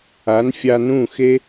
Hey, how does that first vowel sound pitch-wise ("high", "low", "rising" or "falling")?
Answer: rising